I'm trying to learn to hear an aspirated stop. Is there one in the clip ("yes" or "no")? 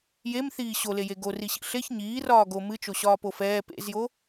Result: no